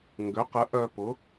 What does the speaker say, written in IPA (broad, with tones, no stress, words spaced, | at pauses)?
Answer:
ŋɡʏ˩˥qə˩˥ ʔœ˧pʊ˩˥